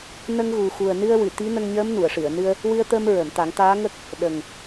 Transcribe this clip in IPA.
n ə˧ ŋ ɣ u˨˩ x u˨˩ ə̯ n ɨ˧ ə̯ w ɨ˨˩˨ t̪ i˧˥ n ə˧ ŋ ɲ əː˧˥ m n u˨˩˨ ə̯ ʂ ɨ˨˩˨ ə̯ n ɨ˧ ə̯ | w ɨ˧ ə̯ t̪ ə˧ m ɹ ə˨˩˨ m t̪ a˨˩˦ ŋ t̪ aː˧˥ ŋ ə˦˥ k̚ | ɗ ə˨˩ ŋ

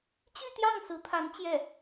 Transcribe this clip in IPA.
t͡ɕ y˥˧ t̪ j ɑ˥˩ ŋ s ɹ̩˧˥ t̪ʰ a˧˥ n t͡ɕ j ɛ˥˩

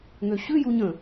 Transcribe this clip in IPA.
ŋ ø ɕ ʉ j u ɲ ə̃

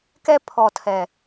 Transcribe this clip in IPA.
k ɛ˦ pʰ ɔ˨ tʰ ɛ˨

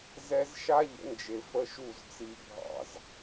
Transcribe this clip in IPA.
z ɛ˦ z ʃ a˦ ʎ ə̰˨˦ n d͡ʒ e˨ f ə˧ ʃ u˦˨ z t͡s i˧ bʱ ɑ̰˦˨ z

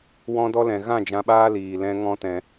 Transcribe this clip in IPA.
w ɔ̃˧ d ɔ˧ l ɛ̃˨ ɣ ã˦˨ d͡ʒ ã˧ ɓ aː˦ l iː˨ l ɛ̃˦ ŋ ɔ̃˦ t ɛ̃˧

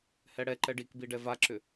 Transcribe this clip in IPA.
h ɛ ɽ ɛ ǃ ɛ ɖ i k b i ɖ ɛ v a ǁ ʏ

